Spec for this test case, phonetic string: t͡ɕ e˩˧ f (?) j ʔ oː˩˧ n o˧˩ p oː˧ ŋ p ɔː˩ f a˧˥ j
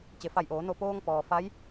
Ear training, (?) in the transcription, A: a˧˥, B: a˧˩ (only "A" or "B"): B